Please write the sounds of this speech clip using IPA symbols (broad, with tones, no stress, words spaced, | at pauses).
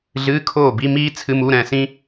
ɮɨː˧˥˧kʰoː˥˩bi˧˥˧miː˥ t͡sʰɨ˧˥˧mu˧˥˧ɾɛ̃˥˩sĩ˥